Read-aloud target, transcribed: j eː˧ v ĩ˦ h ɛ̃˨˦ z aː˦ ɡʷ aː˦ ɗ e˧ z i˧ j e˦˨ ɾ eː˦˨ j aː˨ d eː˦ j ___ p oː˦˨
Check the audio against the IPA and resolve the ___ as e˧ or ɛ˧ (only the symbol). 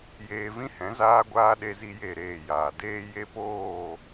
e˧